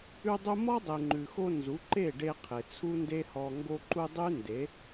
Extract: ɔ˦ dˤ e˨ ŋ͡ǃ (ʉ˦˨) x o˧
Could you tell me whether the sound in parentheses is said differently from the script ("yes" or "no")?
yes